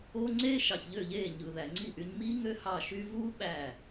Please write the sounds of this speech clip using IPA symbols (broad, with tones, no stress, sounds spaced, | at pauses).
o˦ ŋ͡ǀ eː˦ ʃ ɑ˨ ç ʎ ø˦˨ ʎ eː˦˨ ɲ ɯ˨ ð æ˨ ŋ͡ǀ i˦˨ ʔ y˧ ɲ m iː˦ ŋ ø˦ h ɑ˦˨ ʃ y˦ v uː˦ ɓ æ˦˨